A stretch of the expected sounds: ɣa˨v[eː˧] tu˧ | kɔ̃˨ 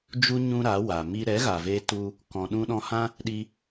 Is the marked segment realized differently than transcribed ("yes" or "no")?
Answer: no